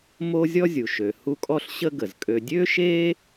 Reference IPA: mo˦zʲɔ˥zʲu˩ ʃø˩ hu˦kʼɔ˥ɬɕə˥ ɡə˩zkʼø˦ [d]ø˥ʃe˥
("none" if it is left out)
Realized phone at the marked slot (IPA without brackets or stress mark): dʲ